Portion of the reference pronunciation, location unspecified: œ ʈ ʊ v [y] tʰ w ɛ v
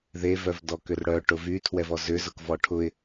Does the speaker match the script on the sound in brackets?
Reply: yes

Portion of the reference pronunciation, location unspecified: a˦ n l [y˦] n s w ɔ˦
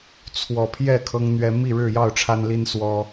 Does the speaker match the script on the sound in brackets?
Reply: no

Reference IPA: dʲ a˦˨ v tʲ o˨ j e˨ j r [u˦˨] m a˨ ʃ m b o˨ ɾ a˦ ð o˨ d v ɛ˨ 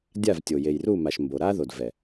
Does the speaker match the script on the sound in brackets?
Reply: yes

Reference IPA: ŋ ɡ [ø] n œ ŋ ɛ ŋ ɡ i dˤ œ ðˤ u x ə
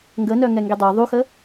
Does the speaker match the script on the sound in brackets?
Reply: no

